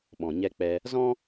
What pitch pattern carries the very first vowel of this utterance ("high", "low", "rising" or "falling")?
low